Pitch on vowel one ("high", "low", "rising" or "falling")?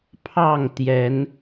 falling